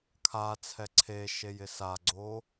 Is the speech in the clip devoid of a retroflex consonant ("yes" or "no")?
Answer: yes